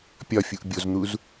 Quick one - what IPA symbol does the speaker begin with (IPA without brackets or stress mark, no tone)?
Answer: pʲ